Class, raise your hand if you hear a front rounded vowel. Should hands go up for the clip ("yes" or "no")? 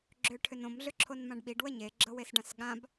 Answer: yes